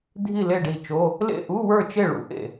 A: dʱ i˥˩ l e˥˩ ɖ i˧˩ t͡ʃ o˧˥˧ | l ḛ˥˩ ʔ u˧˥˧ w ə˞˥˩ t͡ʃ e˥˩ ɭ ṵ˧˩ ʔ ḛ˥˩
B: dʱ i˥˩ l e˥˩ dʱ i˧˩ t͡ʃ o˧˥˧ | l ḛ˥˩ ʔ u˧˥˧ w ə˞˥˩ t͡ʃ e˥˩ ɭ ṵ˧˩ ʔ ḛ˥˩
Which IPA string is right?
A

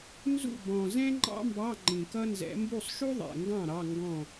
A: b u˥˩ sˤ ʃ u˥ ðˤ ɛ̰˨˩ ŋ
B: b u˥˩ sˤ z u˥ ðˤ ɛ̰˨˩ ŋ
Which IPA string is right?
A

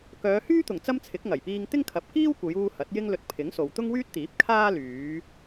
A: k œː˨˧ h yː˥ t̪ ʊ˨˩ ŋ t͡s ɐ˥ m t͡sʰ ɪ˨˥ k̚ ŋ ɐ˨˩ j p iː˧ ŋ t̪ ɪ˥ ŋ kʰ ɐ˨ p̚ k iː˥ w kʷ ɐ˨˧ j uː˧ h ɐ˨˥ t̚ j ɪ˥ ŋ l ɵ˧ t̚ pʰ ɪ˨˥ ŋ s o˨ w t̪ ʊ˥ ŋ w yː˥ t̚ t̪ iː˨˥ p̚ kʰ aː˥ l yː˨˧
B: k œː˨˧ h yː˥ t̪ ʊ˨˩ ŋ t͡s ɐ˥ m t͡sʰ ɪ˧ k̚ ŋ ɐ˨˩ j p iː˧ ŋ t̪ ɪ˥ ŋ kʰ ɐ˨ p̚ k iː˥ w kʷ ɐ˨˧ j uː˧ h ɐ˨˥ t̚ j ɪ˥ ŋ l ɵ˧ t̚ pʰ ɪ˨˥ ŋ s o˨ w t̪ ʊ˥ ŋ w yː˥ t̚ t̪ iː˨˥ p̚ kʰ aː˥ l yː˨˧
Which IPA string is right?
A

